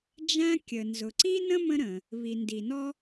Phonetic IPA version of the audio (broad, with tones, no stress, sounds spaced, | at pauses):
d͡ʒ æ̃˥ kʲ ə˩ n z ʊ˩ ǀ i˥ n ə̃˥ m ə̃˥ ɾ ə̃˩ | β i˩ n d i˩ n ɔ˥